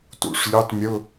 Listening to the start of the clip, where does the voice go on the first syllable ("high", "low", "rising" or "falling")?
low